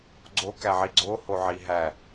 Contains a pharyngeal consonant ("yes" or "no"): yes